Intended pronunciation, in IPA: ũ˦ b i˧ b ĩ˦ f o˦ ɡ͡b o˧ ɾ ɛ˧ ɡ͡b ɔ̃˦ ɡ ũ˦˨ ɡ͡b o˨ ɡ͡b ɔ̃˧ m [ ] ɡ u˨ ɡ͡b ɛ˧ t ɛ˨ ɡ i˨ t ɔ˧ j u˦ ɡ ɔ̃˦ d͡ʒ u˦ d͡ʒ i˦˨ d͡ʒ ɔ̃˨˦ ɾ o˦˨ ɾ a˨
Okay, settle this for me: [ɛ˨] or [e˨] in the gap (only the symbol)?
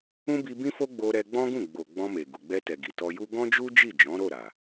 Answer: e˨